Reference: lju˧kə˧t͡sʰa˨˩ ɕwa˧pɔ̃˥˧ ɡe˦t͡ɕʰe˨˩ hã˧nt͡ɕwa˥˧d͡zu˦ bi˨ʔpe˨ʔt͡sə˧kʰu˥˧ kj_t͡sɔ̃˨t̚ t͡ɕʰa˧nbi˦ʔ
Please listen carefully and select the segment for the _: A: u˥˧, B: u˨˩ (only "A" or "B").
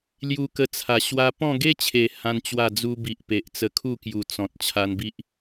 B